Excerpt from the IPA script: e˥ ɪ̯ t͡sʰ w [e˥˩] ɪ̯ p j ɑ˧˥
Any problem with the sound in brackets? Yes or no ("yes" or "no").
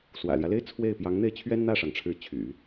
no